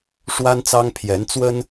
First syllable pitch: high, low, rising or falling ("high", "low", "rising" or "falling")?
high